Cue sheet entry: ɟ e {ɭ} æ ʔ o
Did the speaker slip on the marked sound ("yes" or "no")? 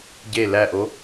yes